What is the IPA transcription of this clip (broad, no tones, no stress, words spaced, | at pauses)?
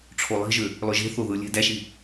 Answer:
ʈ͡ʂʰolˠi̤ʒø | lˠøʒe̤θo ðɯ lʲe̤ dæʃi